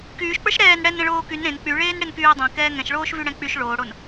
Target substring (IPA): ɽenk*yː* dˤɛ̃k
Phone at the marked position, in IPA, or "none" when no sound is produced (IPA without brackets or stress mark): yː